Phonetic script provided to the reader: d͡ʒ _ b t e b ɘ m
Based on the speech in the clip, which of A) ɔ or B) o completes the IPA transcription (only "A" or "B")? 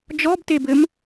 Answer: A